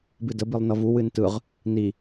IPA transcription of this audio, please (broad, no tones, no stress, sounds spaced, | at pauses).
b ɨ d ə b i lˠ n ʌ v u w ɨ n t ɯ ʁ | n i